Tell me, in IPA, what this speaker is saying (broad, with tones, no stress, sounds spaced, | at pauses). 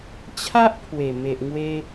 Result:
t͡ɕʰ a˦ ʔ pʰ w e˨˩ m e˨ ʔ ŋ w e˧